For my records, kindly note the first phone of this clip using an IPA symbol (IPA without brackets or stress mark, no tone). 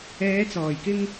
ɛː